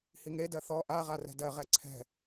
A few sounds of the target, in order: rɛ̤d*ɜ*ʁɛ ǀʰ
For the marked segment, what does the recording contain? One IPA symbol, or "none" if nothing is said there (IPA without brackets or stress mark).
ɜ